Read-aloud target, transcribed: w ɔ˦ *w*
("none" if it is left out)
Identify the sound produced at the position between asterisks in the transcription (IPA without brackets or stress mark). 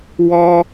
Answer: none